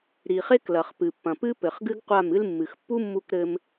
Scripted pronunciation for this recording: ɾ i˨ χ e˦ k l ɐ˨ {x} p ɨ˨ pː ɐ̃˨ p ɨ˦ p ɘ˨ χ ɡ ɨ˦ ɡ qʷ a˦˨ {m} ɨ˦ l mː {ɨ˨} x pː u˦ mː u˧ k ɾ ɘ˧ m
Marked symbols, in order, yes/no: no, yes, yes

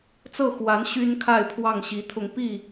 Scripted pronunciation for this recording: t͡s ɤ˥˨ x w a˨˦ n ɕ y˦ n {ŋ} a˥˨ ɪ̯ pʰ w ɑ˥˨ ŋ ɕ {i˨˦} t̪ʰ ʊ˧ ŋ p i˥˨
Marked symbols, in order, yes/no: no, yes

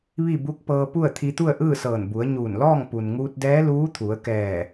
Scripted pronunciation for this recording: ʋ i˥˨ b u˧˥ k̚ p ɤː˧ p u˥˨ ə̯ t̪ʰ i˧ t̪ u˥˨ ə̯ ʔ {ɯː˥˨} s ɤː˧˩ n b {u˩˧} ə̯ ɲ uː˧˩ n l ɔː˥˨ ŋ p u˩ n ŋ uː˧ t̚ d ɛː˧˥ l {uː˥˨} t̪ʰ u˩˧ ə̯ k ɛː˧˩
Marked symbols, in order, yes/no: yes, yes, no

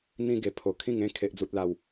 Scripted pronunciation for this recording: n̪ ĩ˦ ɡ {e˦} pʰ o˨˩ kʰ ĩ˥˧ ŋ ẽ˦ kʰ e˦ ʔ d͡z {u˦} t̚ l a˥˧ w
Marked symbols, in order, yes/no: no, yes

